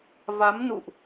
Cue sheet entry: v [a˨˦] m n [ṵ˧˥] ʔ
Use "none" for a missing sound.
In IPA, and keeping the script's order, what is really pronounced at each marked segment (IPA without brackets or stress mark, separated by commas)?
a˨˦, ṵ˧˨